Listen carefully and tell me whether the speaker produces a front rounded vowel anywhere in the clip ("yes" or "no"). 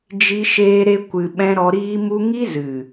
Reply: no